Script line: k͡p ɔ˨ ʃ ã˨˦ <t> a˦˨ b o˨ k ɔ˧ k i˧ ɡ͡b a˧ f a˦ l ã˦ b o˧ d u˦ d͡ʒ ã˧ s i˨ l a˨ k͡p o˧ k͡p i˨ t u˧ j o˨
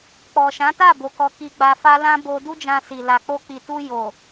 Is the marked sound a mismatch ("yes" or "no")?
no